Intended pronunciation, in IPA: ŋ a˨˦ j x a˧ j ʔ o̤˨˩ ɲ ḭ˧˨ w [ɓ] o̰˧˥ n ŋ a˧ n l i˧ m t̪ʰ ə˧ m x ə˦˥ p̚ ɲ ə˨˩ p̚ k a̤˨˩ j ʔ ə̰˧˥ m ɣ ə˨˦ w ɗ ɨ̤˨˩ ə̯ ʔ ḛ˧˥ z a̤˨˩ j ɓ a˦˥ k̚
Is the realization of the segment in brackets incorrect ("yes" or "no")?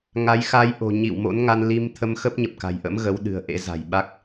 yes